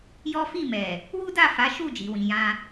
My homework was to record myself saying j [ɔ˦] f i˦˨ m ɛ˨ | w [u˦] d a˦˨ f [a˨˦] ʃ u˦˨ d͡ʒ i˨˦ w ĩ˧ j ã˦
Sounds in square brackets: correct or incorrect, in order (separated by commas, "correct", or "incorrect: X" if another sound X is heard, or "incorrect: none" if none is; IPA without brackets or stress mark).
correct, correct, correct